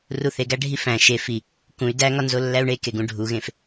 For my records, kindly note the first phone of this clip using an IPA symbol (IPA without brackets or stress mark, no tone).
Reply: r